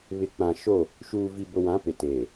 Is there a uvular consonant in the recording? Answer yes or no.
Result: no